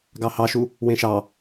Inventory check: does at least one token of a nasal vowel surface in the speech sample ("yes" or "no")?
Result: yes